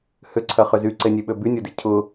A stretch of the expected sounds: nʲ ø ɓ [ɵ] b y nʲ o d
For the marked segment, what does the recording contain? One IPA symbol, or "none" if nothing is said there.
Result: ø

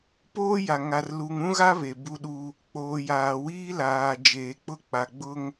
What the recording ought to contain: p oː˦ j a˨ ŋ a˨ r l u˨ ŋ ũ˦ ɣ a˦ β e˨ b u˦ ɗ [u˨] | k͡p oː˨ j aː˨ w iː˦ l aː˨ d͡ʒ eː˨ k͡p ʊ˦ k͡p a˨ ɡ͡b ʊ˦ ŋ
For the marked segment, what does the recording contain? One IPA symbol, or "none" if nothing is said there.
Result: u˦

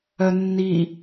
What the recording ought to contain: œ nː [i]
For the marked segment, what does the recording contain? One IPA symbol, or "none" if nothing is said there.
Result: i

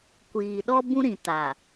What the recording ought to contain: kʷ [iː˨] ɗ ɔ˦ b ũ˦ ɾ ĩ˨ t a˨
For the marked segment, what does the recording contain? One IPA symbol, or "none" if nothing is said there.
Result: iː˨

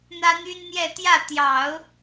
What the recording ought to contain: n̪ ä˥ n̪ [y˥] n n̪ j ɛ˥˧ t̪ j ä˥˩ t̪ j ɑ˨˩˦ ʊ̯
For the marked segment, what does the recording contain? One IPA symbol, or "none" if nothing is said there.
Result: y˥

